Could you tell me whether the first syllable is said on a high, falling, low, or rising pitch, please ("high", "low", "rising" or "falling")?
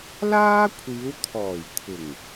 high